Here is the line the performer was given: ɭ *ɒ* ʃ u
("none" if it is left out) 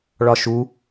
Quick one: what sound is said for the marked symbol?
ɒ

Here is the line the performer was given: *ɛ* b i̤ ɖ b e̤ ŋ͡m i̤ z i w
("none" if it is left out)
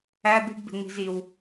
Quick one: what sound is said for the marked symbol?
æ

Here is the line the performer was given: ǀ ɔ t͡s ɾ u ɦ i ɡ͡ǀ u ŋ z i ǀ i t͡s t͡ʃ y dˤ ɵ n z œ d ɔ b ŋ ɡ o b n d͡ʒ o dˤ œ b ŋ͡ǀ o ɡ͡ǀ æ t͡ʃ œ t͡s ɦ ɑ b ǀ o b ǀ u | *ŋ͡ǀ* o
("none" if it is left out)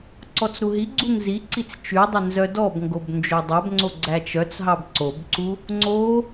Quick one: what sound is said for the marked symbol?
ŋ͡ǀ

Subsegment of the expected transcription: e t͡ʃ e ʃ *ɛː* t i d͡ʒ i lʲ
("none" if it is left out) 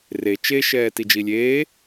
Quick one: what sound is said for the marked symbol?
ɛː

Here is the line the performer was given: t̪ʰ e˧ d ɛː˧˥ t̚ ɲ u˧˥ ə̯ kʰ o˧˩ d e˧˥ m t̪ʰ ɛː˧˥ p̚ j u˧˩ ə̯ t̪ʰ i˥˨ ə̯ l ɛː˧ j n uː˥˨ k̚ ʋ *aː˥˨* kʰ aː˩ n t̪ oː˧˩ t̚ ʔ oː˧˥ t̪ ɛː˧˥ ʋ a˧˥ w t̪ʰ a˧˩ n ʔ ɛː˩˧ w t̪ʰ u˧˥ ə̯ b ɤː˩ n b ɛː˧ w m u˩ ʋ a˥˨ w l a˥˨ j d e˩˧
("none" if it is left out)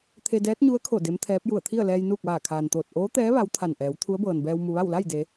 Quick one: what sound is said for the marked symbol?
aː˧˩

